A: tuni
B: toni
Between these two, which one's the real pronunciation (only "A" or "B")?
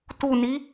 A